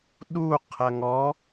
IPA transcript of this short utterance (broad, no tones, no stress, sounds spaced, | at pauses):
ɗ u qʰ ɐ ŋ ɔ